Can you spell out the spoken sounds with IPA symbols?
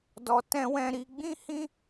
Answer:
d ɔ˧ t ɛ̃˦ w ɛ̃˦ ɾ i˦ ɡ͡b ĩ˦ h ĩ˦

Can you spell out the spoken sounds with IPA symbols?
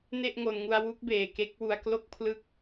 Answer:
n e˥˩ ʔ ŋ o˧ n ŋ u˧ a̯ w u˦˥ k̚ b eː˨˩ k e˦˥ k̚ w u˧ a̯ k l o˥˩ k̚ pʰ l ɯ˥˩ k̚

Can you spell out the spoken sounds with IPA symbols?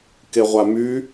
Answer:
k e ʁʷ a m y

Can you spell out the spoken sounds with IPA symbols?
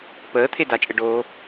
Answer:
p əː t̪ʰ e d a t͡ʃʼ ɘ ɖ oː

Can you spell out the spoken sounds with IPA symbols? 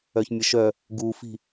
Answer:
œ ç mʲ ə ʃ œ | ɡ u f i̤

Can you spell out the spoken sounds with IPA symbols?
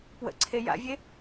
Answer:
p w ə̰ ǀʰ e j a̰ vʲ e

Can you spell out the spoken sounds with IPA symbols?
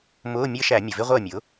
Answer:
m ʊː˧˥˧ mʲ əː˥ ʃ æ˧˩˧ mʲ ʊ˩ v ɪ˥ ʁʷ əː˥˨ mʲ ʊ˩˥

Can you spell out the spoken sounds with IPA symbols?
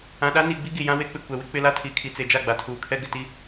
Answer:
ã˨ ɗ a˦ n i˨ ɡ͡b i˦ ɡ i˨ j ã˦ w e˦ k͡p ɪ˨ kʷ ɛ˨ w ɪ˦ k͡p ɪ˦ l a˦ tʰ i˨ kʰ i˨ t͡s e˨ d͡ʒ a˦˨ ɡ͡b a˨ tʰ uː˨ kʰ ɛ˦ ɡ ɪ˨ t i˦

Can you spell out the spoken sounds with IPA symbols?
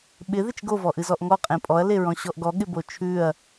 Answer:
ɓ ɪ ð ɪ t͡ʃ ɡ o v ɔ ʔ ɨ z ɔ ʔ ŋ ɔ qʼ ẽ pʼ ɔ ɐ̯ l e ɹ ɔ̃ ɕ ɔ ʔ ɡ ɔ ɠ ɪ b o t͡ʃʰ ʉ ɐ̯

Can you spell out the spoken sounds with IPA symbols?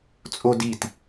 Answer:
t͡sʼ o d i t

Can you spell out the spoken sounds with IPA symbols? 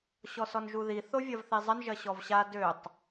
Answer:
ɕ ɔ s ɔ n ʒ u ð i θ o vʲ ɐ v θ i zˤ ə n ʒ ɐ ɕ ɔ v ɕ a d ø tˤ

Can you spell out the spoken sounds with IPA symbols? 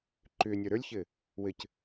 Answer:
ǃ ʏ nʲ ə˞ ɾ ə˞ lʲ ç ɘ | w ɘ c

